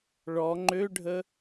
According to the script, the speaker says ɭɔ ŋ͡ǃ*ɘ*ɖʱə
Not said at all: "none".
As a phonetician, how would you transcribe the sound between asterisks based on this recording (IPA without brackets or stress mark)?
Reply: ø